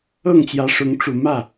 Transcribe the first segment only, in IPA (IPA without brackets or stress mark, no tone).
ɤ